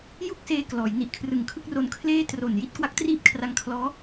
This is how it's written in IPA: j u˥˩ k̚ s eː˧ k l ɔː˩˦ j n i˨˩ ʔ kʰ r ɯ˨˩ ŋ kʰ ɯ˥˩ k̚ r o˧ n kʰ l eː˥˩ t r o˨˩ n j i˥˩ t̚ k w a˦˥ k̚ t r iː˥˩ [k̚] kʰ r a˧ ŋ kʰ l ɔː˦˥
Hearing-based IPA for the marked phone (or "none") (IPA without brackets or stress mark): p̚